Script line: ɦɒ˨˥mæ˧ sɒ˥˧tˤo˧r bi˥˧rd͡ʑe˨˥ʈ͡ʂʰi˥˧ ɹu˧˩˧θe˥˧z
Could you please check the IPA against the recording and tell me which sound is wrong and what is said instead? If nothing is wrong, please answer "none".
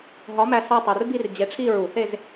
none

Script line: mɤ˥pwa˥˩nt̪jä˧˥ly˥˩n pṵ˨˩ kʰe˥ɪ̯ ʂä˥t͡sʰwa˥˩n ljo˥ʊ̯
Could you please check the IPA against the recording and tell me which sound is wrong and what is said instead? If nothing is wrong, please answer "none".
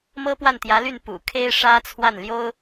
none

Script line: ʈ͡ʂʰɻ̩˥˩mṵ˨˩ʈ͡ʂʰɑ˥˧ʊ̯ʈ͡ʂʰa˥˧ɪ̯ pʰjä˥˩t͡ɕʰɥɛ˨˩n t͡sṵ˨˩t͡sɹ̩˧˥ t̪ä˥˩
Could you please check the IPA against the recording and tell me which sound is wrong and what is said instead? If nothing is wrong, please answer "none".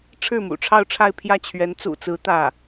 ɛ˨˩ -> ɛ˧˥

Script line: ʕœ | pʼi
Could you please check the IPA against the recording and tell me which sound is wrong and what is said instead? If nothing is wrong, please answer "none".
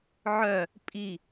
none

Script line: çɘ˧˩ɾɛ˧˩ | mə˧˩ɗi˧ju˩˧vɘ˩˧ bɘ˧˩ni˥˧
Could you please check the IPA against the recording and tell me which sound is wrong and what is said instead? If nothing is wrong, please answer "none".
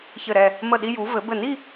none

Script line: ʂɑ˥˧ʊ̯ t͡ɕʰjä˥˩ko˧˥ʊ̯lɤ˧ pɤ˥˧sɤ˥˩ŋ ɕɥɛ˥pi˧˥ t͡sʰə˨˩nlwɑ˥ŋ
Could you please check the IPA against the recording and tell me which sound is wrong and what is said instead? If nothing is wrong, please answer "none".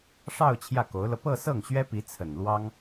none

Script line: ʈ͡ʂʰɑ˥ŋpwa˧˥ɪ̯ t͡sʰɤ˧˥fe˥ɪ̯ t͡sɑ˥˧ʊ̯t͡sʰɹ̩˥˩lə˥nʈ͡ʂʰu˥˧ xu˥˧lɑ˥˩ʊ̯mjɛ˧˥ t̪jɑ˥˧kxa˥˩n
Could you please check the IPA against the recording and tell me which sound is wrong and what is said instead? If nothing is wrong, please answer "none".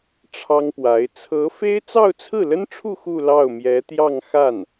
k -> ŋ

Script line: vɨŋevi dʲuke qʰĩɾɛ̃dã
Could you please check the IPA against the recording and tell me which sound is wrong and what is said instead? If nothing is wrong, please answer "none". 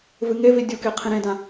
ɛ̃ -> ẽ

